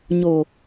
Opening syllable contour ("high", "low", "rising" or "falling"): low